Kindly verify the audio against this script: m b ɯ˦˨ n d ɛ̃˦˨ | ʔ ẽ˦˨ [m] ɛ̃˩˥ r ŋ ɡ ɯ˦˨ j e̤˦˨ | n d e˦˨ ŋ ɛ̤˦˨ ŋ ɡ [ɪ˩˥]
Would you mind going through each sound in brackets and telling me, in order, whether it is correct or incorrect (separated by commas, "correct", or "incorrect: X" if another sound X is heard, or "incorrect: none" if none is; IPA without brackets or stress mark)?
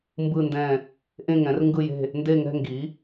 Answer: incorrect: ŋ, incorrect: i˩˥